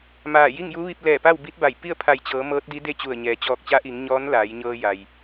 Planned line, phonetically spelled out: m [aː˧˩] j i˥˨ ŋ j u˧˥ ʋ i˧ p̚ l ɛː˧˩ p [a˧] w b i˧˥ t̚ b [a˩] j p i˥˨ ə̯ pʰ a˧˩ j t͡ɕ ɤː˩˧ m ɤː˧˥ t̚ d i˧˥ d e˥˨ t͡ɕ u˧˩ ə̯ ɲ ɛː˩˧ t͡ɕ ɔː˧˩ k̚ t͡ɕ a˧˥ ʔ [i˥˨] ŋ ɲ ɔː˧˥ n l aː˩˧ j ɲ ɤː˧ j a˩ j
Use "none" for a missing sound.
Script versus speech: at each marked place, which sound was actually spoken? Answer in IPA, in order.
aː˧˩, a˥˨, a˧˩, i˩˧

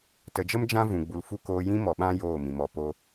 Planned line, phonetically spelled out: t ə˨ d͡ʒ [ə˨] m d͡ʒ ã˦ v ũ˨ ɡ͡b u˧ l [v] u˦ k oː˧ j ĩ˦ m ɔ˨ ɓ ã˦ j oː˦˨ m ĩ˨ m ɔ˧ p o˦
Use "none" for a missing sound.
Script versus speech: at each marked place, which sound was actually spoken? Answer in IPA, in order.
ə˦, f

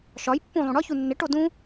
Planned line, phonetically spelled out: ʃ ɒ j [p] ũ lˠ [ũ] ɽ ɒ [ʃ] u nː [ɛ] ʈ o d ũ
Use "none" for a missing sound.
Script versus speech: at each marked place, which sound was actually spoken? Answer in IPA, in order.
pː, ũ, ç, e

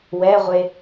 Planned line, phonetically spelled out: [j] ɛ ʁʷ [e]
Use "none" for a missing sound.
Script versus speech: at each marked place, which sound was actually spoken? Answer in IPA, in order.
w, e

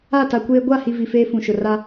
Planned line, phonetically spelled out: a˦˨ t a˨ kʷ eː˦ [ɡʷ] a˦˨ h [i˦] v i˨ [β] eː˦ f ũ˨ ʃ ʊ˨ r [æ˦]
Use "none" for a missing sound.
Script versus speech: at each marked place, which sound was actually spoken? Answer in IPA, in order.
ɡʷ, i˨, f, a˦

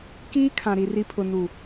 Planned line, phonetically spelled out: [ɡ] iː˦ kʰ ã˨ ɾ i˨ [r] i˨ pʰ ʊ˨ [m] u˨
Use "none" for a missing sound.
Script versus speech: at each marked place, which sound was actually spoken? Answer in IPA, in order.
k, r, n

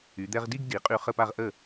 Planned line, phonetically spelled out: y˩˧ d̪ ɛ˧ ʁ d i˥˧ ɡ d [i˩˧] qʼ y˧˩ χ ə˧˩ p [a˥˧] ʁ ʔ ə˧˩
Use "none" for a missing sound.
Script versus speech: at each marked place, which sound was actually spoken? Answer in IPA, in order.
i˩˧, a˧˩

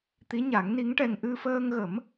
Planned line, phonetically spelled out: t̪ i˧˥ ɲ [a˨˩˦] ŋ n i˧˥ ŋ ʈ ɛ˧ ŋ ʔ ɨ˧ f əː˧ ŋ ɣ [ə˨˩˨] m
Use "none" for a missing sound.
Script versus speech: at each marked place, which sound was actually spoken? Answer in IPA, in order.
a˨˩˦, ə˨˩˦

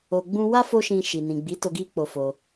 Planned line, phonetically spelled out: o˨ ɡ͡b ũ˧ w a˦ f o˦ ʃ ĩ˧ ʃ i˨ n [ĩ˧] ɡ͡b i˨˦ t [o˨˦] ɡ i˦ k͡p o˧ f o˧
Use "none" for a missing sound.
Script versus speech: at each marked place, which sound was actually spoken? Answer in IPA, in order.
ĩ˨, o˧

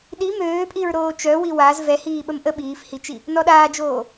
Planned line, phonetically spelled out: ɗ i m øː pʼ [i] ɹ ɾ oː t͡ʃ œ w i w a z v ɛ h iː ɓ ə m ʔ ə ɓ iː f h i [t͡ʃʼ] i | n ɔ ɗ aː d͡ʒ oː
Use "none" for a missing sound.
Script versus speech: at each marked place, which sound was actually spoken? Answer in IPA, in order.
i, t͡ʃ

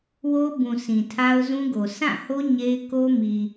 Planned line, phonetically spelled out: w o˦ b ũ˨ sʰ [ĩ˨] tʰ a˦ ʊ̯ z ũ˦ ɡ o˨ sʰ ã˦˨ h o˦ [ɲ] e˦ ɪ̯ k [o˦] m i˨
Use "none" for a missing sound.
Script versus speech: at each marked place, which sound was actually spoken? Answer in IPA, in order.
ĩ˨, ɲ, o˦

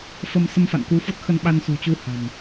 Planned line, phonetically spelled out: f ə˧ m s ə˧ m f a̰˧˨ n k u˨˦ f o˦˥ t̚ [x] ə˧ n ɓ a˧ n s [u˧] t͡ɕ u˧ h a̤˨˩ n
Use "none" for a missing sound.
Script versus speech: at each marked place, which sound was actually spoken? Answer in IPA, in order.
x, ṳ˨˩

